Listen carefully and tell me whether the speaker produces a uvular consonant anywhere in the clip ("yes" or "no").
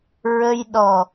no